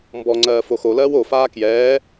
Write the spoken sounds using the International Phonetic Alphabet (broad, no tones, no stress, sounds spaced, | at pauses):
m b ɔ ŋ͡ǀ ɜː f o x o l ɜː w o f aː k j ɛː